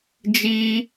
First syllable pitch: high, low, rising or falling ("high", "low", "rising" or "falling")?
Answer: high